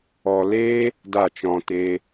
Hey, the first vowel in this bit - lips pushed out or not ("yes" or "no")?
yes